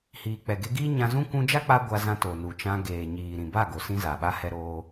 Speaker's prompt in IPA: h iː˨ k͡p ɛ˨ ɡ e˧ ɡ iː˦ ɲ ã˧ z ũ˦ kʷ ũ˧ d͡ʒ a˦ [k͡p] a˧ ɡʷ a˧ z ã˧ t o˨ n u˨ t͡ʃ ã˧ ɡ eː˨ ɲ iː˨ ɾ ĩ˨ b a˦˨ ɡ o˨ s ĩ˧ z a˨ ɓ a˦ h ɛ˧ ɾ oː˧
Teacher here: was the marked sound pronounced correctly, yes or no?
yes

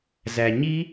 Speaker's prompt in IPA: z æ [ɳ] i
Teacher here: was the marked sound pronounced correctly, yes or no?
no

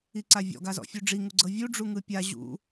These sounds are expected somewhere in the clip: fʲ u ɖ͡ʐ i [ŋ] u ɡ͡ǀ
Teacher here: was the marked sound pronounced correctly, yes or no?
yes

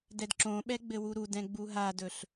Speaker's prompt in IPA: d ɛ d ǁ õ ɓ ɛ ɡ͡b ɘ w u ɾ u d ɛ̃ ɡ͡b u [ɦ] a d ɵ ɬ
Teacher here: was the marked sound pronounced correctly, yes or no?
yes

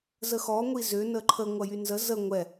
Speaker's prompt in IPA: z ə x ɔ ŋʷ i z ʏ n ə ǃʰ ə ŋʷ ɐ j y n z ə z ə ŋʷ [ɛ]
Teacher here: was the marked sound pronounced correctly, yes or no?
yes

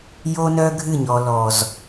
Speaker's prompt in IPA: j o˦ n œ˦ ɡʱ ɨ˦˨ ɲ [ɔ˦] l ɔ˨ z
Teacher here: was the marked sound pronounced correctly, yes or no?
no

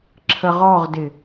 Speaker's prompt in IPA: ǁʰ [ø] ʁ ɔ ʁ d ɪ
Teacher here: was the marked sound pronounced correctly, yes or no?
no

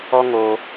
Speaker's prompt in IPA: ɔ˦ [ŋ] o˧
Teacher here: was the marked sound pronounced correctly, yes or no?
yes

